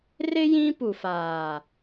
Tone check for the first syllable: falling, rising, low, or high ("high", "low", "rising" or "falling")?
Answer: high